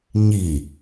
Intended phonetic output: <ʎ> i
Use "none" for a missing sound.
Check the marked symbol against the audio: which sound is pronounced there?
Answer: ɲ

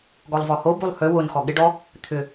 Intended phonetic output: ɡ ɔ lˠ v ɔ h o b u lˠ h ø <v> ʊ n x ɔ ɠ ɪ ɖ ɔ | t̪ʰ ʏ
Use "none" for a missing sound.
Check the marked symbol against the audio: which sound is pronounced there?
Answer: w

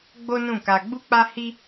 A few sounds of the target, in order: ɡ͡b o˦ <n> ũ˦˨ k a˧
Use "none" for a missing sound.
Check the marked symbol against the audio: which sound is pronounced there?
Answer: n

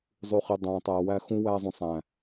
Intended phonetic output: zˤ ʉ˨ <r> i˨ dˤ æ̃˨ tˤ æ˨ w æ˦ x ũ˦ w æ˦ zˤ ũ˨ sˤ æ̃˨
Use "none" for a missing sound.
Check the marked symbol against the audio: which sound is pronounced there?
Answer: χ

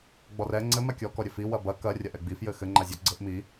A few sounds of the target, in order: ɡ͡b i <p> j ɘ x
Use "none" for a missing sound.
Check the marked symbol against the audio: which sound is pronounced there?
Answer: f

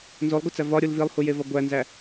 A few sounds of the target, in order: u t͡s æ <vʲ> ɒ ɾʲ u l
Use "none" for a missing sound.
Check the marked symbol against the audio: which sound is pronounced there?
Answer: v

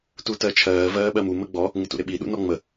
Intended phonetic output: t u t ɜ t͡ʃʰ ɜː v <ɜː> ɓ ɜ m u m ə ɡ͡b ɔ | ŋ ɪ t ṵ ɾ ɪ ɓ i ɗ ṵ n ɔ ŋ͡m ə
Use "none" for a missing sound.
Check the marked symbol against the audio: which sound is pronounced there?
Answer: ɜː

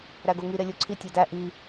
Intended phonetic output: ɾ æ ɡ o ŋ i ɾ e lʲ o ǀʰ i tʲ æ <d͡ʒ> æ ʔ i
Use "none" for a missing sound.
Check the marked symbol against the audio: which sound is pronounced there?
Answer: d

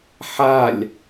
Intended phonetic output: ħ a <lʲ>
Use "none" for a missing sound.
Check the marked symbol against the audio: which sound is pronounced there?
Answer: lʲ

